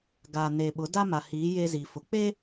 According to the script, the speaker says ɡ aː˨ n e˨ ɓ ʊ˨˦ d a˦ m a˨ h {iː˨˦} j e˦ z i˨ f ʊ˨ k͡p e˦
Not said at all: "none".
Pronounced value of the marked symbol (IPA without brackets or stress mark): iː˨˦